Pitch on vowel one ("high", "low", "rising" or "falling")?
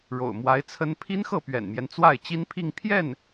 low